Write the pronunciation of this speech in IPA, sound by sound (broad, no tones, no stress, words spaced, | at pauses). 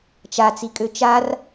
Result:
t͡ʃat͡si kʼøt͡ʃar